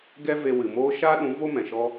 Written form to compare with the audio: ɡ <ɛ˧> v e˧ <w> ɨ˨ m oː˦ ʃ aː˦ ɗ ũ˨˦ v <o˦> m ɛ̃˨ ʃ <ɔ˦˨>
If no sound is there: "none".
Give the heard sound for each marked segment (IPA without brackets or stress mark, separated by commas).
ɛ˦, w, o˦, ɔ˦